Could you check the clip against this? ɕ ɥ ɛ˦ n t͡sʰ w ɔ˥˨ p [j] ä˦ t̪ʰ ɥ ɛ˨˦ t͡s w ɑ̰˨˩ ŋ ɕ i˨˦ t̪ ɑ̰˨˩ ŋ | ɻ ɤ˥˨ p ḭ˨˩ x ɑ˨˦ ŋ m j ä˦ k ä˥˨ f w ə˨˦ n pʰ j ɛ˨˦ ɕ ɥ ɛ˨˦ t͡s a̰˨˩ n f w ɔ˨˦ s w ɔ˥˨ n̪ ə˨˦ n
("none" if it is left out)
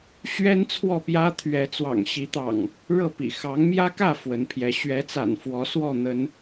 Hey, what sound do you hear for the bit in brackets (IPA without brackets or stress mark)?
j